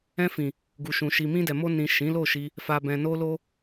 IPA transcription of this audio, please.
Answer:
ɛ̃˧ f ĩ˨ | ɡ u˨ ʃ ũ˨ ʃ i˨ m ĩ˧ d ɛ˨ m o˧ n ĩ˨ ʃ ĩ˨˦ l o˦˨ ʃ i˧ | f a˨ b ɛ̃˨ n o˧ l o˧

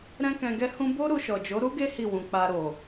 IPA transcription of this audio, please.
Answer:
ɾ ɛ̃˦ k ɛ̃˧ ɡ ɛ˦ h ũ˦ b o˦ ɾ u˧ ʃ ɔ˨ d͡ʒ o˨˦ ɾ u˦ ɡ e˦ h i˦˨ w ũ˨ k͡p a˧ ɾ o˨

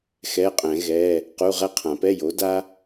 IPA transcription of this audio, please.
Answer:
x ɛ˧˥˧ qʼ ɛ̃˨˩˦ ɣ ɛ˧˥˧ | q u˧˥˧ ʁ ɛ˥ qʰ ã˨˩˦ p ɛ˧˥˧ j o˩˥ d a˥

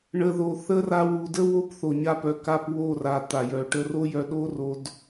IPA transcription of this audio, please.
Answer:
ɳ ə˨ ð o˨ θ ə˦ r a˧ w u˨ d ə˦ w o˦ p θ o˨ ɲ a˧ p œ˨ k a˧ p w o˦˨ r a˨ t̪ a˨ j œ˨ ʈ ə˧ r o˦ j œ˧ ɗ o˦ r o˧ d

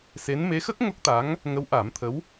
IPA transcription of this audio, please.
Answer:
s e˧˥ n m e˧˥ x ə˦˥ k̚ ŋ o˦˥ k̚ t̪ a˧˥ ŋ | ŋ ə˧˥ w ʔ a˨˩˦ m t̪ʰ ə˧˥ w

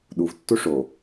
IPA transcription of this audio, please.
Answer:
ɗ u v tː u ʂ o

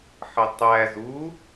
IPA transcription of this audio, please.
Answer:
ħ ə tˤ æ z u

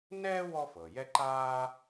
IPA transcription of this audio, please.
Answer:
n ɛː˥ w ɔ˥ f ɤ˩ j ɛ˥ ǃ aː˥

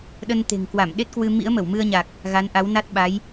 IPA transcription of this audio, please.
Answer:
ɗ ə˧ n t̪ e̤˨˩ ŋ k w a˧˩ m ɗ e˦˥ t̚ k w ɨ˧ m ḭ˧˥ ə̯ m ə˧˩ w m ɨ˧ ə̯ ɲ a˨˩ k̚ | ɣ a˨˦ n ʔ a˨˦ w n a˦˥ t̚ ɓ a˨˦ j

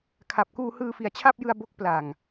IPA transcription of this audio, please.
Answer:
kʰ a˨˩ p̚ k uː˧ h ɯː˧ f i˨˩ a̯ t͡ɕʰ a˥˩ p̚ j ɯ˧ a̯ b o˦˥ k̚ p l a˨˩ ŋ

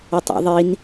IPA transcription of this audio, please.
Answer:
ʊ tˤ ḭ ðˤ i n

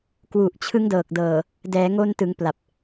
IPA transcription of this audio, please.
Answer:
k w u˨˩ ʔ t͡ɕʰ ɯ˦˥ ŋ d ɤː˨˩ k̚ d ɤː˨˩ | d ɛː˩˦ ŋ o˧ n t ɯ˩˦ ŋ p l a˨˩ p̚

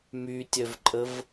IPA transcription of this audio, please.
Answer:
m y tʲ œ v ǃʼ ə v

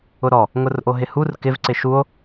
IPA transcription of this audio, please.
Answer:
ʊ ɾ ɔ | ŋ ʊ r ʔ o ɦ ɪ h u r k ɪ v ǀ ɪ ʃ u o̯

